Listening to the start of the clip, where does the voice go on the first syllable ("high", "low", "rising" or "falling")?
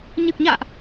low